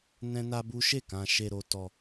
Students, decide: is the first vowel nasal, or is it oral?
nasal